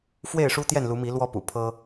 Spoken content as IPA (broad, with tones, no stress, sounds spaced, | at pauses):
f w e˥˨ ɪ̯ ʂ u˦ t̪ j ɛ˥˨ n l u˨˦ m i˨˦ l w ɔ˦ p ṵ˨˩ pʰ ɤ˦